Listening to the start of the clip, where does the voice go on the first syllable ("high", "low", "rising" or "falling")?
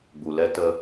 low